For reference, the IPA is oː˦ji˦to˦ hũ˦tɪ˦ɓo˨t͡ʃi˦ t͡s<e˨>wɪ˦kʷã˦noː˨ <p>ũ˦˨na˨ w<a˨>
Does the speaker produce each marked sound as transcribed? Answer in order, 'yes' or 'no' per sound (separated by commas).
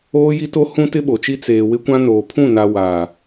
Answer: no, no, no